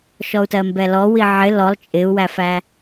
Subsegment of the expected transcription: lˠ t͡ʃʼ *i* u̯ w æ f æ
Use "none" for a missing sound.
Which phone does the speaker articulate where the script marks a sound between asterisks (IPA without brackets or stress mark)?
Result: ɪ